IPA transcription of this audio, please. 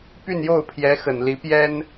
p y˥˧ n j o˥˩ ʊ̯ pʰ j ɛ˧˥ x ə˨˩ n l i˧˥ p j ɛ˥ n

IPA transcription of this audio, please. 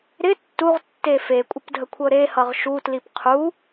ɾ ɪ tː u ʁ tː e f e kʷʼ ə p dʱ ə kʷʰ ɤ ɾ e h ʌ ʁ ʃ u t l i p qʰ u

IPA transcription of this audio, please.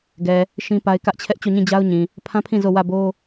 ɡ ɛ˨ | ʃ ĩ˦ p a˦ ɪ̯ k ä˦ ʔ t͡ɕʰ ɛ˦ ʔ t͡ɕ o˦˨ ɲ ĩ˦˨ d͡ʑ a˦ ʊ̯ ɲ ĩ˨ | pʰ ã˦ pʰ ĩ˦˨ z o˦˨ w ä˦˨ b o˦

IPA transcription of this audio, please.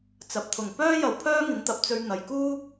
t͡s ɐ˨ p̚ t̪ʰ ʊ˨˩ ŋ p œː˥ j ɐ˨ w pʰ œː˥ ŋ ɪ˨˥ ŋ t̪ ɐ˨ p̚ t͡s ɵ˧ ɥ n̪ ɐ˨ j k uː˥

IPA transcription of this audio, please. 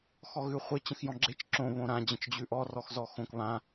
x ɔ ɣ ʉ χʷ ɪ t͡ɕ ə̃ x j ɔ̃ ɡ͡ǁ e t͡ʃ ǁ õ β õ ɾ ã d͡ʑ ə̃ t͡ʃ d͡ʑ ʉ ʔ ɔ r ɔ x z ɔ x õ k β ã

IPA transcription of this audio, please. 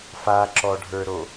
f a ǁ ɔ ɖʱ ə˞ ɾ o

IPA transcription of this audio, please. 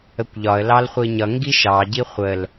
ə kʷ ʎ ɒ ə̯ l ɑ l χʷ i ɲ ʌ ŋ ɡ i ʃ ɑ ɟ i χʷ ə l

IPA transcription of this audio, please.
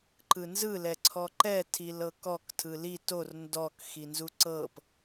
ǃ ɯ n z ɯ l ɛ ǀʰ ɔ ǃ ɛ tʰ i l ɤ k ɔ k tʰ ɯ l i t o r n d ɔ k x i n z u ǀ ɤ p

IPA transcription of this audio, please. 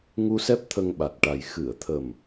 ŋ u˧ s ɛ˦˥ p̚ t̪ʰ ə˧ ŋ ɓ a˨˩ t̚ ʈ a˨˩ j x ɨ˨˩˨ ə̯ t̪ʰ ə˨˩ m

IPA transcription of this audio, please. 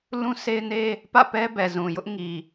l ũ˦ sʰ e˦ ɪ̯ n e˦ | p ä̰˦˨ p ɛ˦ b ɛ˨ z ũ˨ j ʊ˦ ʔ ŋ i˨

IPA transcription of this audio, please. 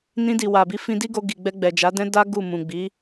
n ĩ˧ d i˨ w a˨ b i˧ f ĩ˧ d i˦ ɡ o˧ ɡ i˨ ɡ͡b ɛ˧ ɡ͡b ɛ˨ d͡ʒ a˨˦ d ɛ̃˦ d a˦ ɡ u˦˨ m ũ˨ ɡ͡b i˨˦

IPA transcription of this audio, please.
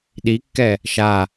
ɗ i kː ɛ | ʃ a

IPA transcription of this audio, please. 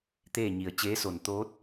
t̪ eː˥˨ ɲ i˩ ə̯ t͡ɕ eː˧˥ s o˧˩ n t̪ oː˧˥ t̚

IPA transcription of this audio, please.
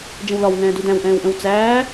d͡ʒ ə̃ w l ɒ w ŋ ɛ̃ː d u d æ̃ w ʔ ɛ̃ː w ʔ ə̃ w t͡s æː

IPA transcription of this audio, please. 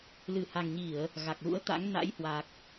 l ɨ˧˩ h a˨˩ ŋ ɲ i˧˩˨ ə̯ | ɣ a˨˩ k̚ l ṵ˧˥ ə̯ t̪ a̰˧˥ ŋ n a̰˧˥ j h w a˨˩ k̚

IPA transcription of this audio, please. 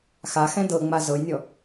x a x ɛ̃ d ɤ ŋ͡m a z ɤ j nʲ ɔ

